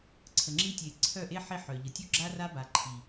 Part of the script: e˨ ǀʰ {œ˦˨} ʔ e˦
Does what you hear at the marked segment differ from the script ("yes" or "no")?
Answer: no